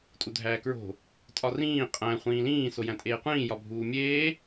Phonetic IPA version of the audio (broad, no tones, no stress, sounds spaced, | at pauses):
tʼ u dʱ æː k ɹ o̤ | tʼ ɒ r ĩː qʼ æ̃ χʷ ĩː l ĩː s o j æ̃ tʼ eː qʷ ĩː j ɒ bʱ uː mʲ eː